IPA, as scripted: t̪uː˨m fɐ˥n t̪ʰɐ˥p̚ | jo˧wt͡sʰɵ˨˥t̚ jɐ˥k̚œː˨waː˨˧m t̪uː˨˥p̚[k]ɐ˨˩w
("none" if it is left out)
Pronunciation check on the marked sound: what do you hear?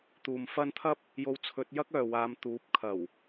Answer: kʰ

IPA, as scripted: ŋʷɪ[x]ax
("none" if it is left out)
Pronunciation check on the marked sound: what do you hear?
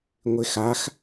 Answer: x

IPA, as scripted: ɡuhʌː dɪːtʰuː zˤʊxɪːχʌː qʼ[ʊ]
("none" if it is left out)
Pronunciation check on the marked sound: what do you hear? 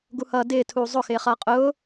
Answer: ʊː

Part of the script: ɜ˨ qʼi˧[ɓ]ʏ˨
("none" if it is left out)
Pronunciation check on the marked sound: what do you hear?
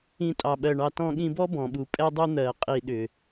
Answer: ɗ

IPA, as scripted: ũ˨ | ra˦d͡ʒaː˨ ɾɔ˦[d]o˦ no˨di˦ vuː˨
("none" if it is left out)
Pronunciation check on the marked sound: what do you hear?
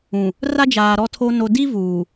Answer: tʰ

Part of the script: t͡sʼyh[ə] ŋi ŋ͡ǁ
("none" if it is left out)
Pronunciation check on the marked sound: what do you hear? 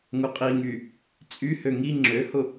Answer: ø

